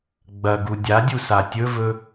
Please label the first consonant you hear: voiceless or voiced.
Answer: voiced